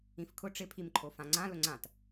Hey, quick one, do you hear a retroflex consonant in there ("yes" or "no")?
yes